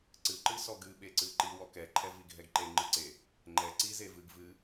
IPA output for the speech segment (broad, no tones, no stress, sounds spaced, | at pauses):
ǀ ɨ ǃ ɨ s ɔ ɡ ɨ ɓ e ǀ ɨ ǃ i w ɔ k ɛ ǃʰ ɛ v i ɡʱ ɛ ɡ ǃ e ŋ͡ǃ ɨ ǀ e | ŋ͡ǃ ɛ ǀ i z e v ɨ ɡ v ɨ